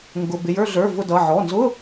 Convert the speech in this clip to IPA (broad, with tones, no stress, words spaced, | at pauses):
ŋɡʊ˩˧˩bɪ˩˧˩jə˞˦˨ ɮə˞˩˧˩ vʊ˦˨dʌ˩˧˩ ʕɔ˩˧˩nzʊ˧˥˧